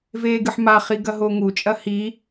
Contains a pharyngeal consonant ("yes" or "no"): yes